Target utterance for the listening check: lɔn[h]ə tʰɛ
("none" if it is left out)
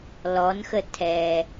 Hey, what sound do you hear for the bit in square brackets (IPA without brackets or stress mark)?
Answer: x